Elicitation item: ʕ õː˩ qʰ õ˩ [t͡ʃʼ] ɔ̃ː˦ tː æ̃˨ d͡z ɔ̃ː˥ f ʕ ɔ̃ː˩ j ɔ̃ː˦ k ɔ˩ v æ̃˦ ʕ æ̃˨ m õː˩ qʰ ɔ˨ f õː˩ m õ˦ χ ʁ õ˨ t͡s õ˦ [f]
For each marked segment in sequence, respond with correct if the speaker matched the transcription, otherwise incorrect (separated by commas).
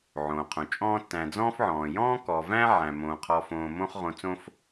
correct, correct